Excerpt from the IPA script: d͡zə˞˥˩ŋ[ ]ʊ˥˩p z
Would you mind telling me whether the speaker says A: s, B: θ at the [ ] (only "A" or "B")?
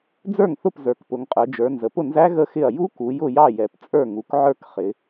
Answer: B